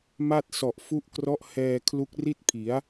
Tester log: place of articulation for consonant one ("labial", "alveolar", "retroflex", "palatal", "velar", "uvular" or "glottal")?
labial